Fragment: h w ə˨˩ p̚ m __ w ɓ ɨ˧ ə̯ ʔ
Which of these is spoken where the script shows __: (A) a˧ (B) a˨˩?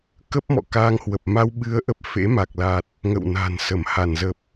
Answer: A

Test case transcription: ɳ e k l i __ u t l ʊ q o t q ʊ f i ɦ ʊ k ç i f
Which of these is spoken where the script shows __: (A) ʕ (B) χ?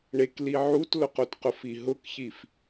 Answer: A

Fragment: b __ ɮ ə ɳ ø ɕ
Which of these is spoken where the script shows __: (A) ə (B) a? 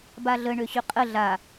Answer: B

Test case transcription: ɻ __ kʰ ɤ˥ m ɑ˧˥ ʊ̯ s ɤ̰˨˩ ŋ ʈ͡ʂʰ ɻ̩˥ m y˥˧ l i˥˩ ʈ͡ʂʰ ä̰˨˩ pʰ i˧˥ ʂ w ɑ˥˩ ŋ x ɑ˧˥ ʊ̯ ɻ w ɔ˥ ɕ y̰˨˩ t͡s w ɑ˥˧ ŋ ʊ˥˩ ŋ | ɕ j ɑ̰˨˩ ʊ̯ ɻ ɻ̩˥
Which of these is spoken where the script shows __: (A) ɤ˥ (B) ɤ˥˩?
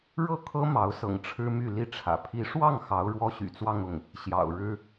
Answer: B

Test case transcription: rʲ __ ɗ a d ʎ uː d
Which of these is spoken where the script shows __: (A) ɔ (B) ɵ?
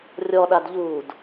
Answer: A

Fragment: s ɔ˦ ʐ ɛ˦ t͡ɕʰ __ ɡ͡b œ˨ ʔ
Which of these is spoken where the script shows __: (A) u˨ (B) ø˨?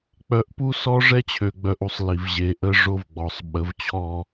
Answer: B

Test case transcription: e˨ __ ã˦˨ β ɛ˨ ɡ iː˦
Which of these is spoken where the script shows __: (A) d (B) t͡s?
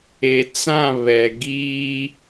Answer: B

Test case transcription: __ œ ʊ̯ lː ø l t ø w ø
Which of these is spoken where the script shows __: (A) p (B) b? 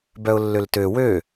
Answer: B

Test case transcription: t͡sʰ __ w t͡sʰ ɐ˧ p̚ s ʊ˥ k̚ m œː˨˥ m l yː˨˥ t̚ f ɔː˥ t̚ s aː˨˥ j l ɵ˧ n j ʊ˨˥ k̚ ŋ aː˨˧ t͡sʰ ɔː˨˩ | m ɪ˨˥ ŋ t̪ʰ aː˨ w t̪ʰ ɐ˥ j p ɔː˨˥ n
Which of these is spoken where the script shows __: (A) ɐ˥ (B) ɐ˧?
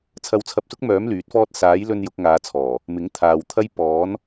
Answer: B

